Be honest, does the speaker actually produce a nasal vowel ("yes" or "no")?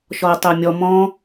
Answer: yes